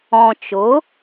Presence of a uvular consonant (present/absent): absent